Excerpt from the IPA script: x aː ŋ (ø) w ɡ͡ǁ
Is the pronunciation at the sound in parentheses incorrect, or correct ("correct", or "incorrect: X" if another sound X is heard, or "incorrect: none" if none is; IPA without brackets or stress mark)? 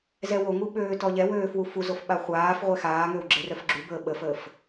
correct